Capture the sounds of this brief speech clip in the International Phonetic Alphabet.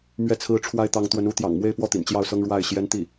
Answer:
m ɥ ɛ˥˩ t͡sʰ ɹ̩˥ ʈ͡ʂʰ w a˥ ɪ̯ t̪ ɑ˧˥ ŋ t̪ w ə˧˥ n u˧˥ t̪ j ɑ̰˨˩ ŋ m w e˥˧ ɪ̯ p w ɔ˥˩ t̪ ḭ˨˩ n t͡ɕ j ɑ˥˩ ʊ̯ s ɤ˥ ŋ ɻ w a˥˩ ɪ̯ ɕ j ɛ˥ n t̪ i˥˩

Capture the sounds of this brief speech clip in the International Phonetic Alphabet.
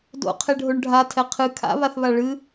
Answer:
d o̰ qʰ e ɖʱ o ɳ ɖʱ a tʰ ɛ qʰ ɨ kʰ a̰ β a θ β a ɭ ɨ

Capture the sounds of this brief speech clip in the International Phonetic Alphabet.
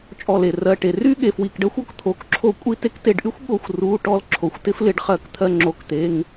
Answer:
t͡ʃʼ ɔ˧˩ l e˩ r ɜ˩˧˩ ʈ e˩ r y˥ ɠ e˩ f w i˩˧˩ k ɖ ɜ˥ xʷ ɔ˧˩ k t̪ʰ o˩˧˩ k ǁʰ o˧ kʷʼ i˧ t e˧ k t e˧˩ ɖ ʔ y˥ xʷ ɠ o˧ xʷ r u˩˧˩ ʈ ɔ˥ l ǁʰ o˩ xʷ t ɪ˥ f l ɪ˩˧˩ ɖ χ ɜ˧˩ k t̪ʰ ɜ˧ ŋ͡ǁ o˩˧˩ k t̪ e˩˧˩ ŋ

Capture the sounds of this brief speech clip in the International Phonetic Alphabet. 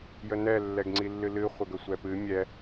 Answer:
j ə n ɛ lː ɛ ɡ ŋ͡ǀ i lː ɨ l ɨ χʷ ə ɡ ə sʷ ɛ p ɨ mʲ ɛ

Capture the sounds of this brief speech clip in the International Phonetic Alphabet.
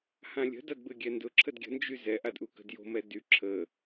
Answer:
h ã lʲ ə̤ d a d b ɘ ɡʲ ɛ n d ʊ ǁʰ ə d ɡʲ ə̤ n d͡ʒ y z ɛ ʔ a d ʔ u k ə̤ d j o̤ m ɛ d y ǁʰ ə

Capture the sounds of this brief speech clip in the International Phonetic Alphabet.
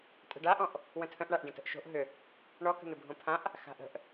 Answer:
tʼ ə̤ ɖ a ʔ ɔ̃ ʔ | w ə̃ tʰ ə̃ ʔ ɳ a ʔ ɖ ə̃ t ə̤ ʔ ʃ o̤ ʔ ɦ ʏ | ɳ ɔ k ə̤ n̪ ʏ bʱ õ pʰ ã ʔ | x a̤ ʔ ə̤ ʔ

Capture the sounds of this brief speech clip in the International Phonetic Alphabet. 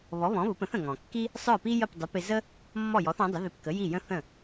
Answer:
β ɔ˩˥ β ɔ̃˩˥ β ʊ˩˥ p ə̃˩˥ θ ə̃˩ ŋ ɔ̃˩ kː i˥ | sˤ ə˞˥˩ p i˥ j ə˥˩ p dˤ ɪ˩˥ p ɪ˧ z ə˥ | mː ɔ˥˩ j ɔ˩˥ θ ɔ̃˩˥ dˤ ə˩˥ ð ɪ˧ p k ə˩˥ j i˥˩ j ə̃˥ θ ə̃˥˩

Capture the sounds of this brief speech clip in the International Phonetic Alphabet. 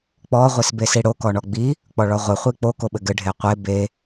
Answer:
k͡p ɔ ʁʷ i s b e s i ɽ o k ɔ ɳ ɔ ɡ͡b i | k͡p ɔ ɭ ɔ ʁʷ ɘ χʷ i k͡p o k o ɓ ɘ ɡ ɘ ɖʱ e qʷ e b e

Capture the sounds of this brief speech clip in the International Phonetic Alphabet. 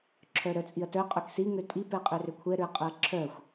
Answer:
ǁʰ œ ɾ œ t͡sʼ i ɐ̯ t œ qʼ œ k s i ŋ ø tʼ i p ɛ qʼ ø r ø kʷʰ ɛ ɾ ø ɐ̯ qʼ œ ɐ̯ ǁʰ œ xʷ

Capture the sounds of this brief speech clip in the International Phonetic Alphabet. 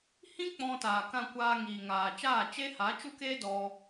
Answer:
h ĩ˦ k͡p ɔ̃˧ t aː˨ k ã˧ kʷ aː˧ ŋ iː˨ ŋ aː˨ t͡ʃ aː˦˨ t͡ʃ e˦ h a˨˦ t͡ʃ u˦ k eː˦ d ɔ˧

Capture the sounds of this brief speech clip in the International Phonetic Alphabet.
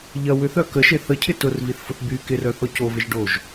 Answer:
ʎ ɐ w ʏ θ œ k ə ʃ e θ ə cʰ ɪ t ʊ r v i θ f ʊ θ b y k ɪ r œ θ ɔ c o v ɪ ʒ ɖ o ʒ

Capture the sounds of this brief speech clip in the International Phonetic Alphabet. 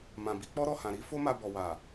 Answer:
m ã˨ b i˨˦ k͡p ɔ˦ ɾ ɔ˦˨ h ã˨ ɾ i˨˦ f o˦ m a˧ b ɔ˨ w a˨

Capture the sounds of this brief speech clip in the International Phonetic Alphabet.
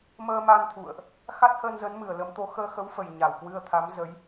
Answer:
m əː˧ m a˧ n t̪ʰ ṵ˧˨ ə̯ ʔ | x a˦˥ t̚ h əː˧ n z ə˨˦ n m ɨ˨˩ ə̯ l ə˨˦ m t̪ o˨˦ x əː˧ x ə˨˦ w f ə˨˩ j ɲ a˨˩ w k w ɨ˧ ə̯ t̪ʰ a˨˦ m z ə˨˦ j

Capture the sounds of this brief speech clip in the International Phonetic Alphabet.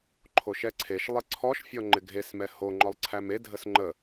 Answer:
ǃʰ o ʃ ɛ ǀʰ e ʃ lˠ ɪ ǀʰ ɔ ʃ fʲ ɔ ŋ͡ǃ ɪ ɡʱ e s m ɛ h o ŋ͡ǃ ɔ lˠ ǀʰ æ m e dʱ ə s ŋ͡ǃ ə

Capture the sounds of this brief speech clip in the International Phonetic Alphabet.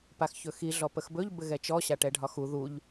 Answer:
p a x ç ɵ x i ɮ ɔ p ə x b ɵ ʎ b ɘ ɣ ɛ t͡ʃ ɔ ɕ a ʈ ɛ ɖʱ ɒ x u ð u ʎ

